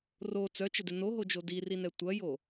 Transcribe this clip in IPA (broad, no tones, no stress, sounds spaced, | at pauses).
r o t͡s œ t͡ʃ ə d ɪ n o ɦ o d͡ʒ o d i r i n ɛ tʷ ɐ j o